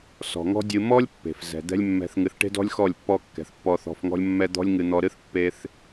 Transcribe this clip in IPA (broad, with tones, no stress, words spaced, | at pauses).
sɔ̤˨ŋɔ̤˦dʲɨ˧ mɔ˦lʲ pːe̤˨fzɛ̤˨ d̪ɛ̤˦lʲ mːɛ̤˨θŋɨ˨θʈe̤˧dɔ̤˧lʲ xɔ˦˨lʲpːɔ˧kːɛ̤˨θ pːɔ˧θɔ̤˧f ŋɔ̤˦lʲ mːɛ˧ d̪ɔ̤˦lʲ ŋɨ˧ n̪ɔ˧ɾɨ˦θ pːe˦θ